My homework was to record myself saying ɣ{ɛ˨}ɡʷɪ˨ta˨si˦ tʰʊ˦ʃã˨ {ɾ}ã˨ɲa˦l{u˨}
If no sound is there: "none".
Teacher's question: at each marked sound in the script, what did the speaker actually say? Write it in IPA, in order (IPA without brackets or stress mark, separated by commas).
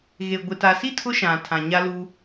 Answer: e˨, tʰ, u˦